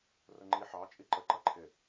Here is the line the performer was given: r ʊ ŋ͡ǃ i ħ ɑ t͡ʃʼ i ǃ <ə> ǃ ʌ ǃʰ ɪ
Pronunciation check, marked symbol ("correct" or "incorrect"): correct